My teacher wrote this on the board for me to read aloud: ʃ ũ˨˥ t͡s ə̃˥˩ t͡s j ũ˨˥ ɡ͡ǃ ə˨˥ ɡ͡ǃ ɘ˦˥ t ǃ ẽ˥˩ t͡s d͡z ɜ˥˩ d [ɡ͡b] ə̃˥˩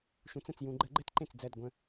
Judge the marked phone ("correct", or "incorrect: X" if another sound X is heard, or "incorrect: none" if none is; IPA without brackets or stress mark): incorrect: ɡʷ